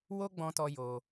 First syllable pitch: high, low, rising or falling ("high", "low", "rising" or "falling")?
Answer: high